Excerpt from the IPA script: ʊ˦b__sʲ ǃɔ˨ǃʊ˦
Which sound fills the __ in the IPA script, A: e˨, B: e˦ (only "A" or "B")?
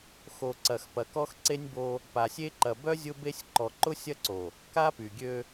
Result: B